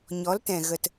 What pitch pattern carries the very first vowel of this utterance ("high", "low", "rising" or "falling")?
rising